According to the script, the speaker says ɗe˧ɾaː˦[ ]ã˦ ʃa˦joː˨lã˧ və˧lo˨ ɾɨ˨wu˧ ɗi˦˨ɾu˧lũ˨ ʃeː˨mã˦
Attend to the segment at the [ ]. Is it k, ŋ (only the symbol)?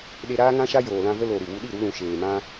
ŋ